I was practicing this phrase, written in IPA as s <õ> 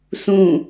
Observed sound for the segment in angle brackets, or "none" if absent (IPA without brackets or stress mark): ũ